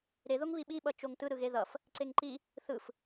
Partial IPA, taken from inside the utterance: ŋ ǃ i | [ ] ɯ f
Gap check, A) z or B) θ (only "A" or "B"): B